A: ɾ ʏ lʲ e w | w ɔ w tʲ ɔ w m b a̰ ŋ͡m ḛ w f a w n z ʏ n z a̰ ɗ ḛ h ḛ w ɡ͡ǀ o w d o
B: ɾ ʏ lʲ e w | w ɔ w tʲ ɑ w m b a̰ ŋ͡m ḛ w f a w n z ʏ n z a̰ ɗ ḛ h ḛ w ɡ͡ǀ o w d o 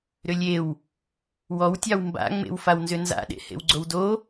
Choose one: B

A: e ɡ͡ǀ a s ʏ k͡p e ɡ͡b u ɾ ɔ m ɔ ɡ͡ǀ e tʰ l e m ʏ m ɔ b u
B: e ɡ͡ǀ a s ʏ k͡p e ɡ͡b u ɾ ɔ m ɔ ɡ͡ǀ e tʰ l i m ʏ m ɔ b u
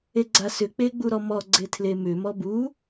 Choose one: A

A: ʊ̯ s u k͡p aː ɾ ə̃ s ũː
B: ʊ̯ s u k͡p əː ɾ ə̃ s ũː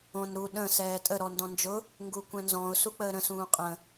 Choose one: B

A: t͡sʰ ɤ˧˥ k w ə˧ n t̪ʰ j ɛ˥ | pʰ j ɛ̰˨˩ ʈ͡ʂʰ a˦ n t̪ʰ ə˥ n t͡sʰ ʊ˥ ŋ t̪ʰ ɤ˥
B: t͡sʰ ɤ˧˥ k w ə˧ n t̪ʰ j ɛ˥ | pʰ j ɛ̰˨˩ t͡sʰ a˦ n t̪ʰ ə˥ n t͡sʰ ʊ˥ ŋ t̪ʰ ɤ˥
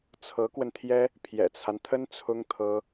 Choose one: B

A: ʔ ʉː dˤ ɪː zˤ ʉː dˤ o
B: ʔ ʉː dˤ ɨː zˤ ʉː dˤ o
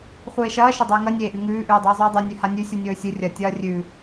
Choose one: B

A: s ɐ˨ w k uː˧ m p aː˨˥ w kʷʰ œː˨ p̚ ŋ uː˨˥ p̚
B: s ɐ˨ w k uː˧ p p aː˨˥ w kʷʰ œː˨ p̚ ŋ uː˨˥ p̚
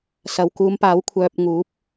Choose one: A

